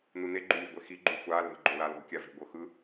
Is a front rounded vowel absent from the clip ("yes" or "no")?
yes